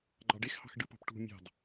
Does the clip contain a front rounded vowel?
no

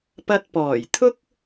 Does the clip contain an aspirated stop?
yes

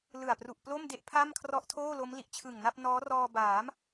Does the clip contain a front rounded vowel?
no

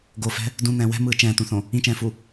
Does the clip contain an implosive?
no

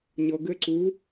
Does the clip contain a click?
yes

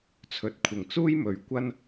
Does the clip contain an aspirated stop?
yes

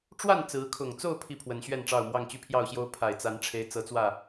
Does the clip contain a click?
no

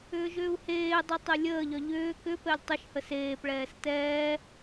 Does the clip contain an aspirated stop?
no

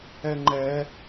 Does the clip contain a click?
yes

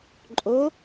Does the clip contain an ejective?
yes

